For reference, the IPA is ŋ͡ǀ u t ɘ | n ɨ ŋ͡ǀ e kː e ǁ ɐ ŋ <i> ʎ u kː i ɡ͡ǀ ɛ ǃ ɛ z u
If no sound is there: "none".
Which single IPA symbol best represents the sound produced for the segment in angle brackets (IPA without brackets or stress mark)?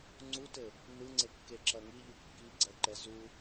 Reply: i